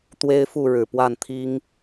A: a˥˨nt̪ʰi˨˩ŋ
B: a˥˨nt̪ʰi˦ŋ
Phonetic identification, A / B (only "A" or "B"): B